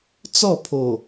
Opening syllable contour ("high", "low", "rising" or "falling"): falling